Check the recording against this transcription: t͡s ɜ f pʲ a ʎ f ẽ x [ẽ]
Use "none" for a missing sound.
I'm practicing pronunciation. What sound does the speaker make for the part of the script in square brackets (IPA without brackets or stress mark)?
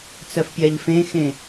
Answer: ẽ